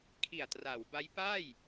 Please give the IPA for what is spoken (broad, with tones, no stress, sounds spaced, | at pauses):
kʰ i˨˩ a̯ t r a˩˦ w b a˦˥ j p aː˥˩ j